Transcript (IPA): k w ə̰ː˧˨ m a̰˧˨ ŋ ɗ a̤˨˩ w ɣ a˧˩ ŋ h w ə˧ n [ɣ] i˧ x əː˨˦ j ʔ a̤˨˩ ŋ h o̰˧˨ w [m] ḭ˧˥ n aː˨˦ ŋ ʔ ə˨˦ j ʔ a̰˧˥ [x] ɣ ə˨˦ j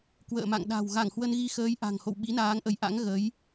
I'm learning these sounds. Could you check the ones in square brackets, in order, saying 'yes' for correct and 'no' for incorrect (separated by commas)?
yes, no, no